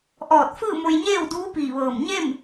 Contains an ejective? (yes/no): no